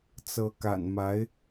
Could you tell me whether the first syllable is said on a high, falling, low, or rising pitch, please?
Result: rising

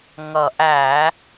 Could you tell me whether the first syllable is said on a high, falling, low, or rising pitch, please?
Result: low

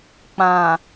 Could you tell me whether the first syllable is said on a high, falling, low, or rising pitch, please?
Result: low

